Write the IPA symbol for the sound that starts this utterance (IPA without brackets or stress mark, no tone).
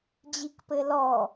d͡ʑ